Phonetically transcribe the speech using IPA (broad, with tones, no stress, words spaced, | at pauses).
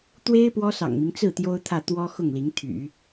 t̪we˥ɪ̯ pwɔ˥sɑ̰˨˩ŋmi˦ŋ t͡sɹ̩˥˩ t̪jo˥ʊ̯t̪ʰä˥˩ t̪wɔ˥xʊ˥˩ŋli˧˥ŋ t̪ʰy̰˨˩˦